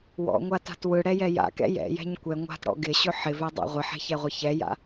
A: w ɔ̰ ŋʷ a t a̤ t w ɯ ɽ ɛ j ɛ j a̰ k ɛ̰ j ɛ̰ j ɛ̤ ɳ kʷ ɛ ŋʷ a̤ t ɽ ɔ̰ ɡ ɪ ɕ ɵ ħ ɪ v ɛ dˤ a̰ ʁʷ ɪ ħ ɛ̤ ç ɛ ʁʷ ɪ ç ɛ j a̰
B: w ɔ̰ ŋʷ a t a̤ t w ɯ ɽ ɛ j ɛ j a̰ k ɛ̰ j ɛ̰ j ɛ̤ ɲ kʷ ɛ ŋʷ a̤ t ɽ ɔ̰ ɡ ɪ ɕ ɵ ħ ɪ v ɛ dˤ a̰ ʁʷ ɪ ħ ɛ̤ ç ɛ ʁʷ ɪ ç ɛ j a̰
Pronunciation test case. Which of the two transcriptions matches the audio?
B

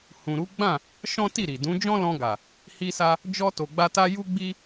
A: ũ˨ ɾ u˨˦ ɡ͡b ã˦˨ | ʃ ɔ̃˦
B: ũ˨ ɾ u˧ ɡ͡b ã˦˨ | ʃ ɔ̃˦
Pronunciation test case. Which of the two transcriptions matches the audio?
A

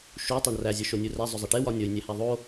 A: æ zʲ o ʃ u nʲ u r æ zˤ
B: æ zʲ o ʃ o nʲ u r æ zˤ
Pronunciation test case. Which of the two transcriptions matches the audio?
B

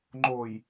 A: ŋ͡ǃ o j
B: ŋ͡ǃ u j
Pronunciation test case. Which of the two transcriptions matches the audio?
A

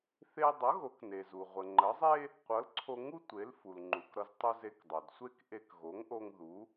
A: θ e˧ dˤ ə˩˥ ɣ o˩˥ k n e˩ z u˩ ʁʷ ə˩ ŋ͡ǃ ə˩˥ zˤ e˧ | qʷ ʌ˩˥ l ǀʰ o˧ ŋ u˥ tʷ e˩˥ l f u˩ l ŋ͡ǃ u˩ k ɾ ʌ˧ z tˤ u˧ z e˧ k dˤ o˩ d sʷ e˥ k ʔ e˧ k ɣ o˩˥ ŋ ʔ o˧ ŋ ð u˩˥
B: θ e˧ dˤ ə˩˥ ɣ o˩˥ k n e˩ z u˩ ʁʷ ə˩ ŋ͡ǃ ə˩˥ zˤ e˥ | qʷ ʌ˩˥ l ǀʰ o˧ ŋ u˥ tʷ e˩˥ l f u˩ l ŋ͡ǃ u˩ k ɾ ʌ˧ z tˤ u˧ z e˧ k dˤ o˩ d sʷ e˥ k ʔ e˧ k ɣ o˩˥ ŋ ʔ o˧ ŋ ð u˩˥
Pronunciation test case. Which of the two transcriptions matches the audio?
B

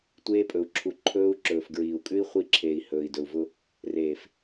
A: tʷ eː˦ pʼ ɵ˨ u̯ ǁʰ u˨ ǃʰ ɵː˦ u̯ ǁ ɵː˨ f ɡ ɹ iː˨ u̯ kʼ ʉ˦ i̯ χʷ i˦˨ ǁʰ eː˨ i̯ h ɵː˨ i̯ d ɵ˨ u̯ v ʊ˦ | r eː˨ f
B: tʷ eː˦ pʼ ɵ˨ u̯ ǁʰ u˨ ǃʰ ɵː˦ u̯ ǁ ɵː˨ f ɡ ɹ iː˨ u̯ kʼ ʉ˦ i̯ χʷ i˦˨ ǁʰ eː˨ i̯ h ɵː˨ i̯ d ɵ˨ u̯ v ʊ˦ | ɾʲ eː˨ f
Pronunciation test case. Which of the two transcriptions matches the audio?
A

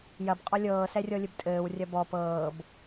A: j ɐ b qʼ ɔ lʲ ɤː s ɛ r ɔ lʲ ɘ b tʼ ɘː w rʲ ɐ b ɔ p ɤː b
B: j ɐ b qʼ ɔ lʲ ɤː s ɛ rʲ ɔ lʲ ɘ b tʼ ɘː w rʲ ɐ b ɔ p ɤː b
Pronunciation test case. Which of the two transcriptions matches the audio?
B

